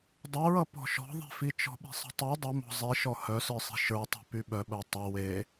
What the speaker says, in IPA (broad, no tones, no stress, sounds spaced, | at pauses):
dˤ ʌ ɹ ʌ p ɔ̤ ʃ ɔ̤ ðˤ e̤ f i t͡ʃ ɔ̤ ɓ i̤ sˤ ə̤ tˤ i dˤ ə m ɔ̤ zˤ i ʃ ɔ h œ s ə˞ sˤ i̤ ʃ ə˞ tˤ i̤ p y ɓ œ ɓ œ tˤ ʌ w e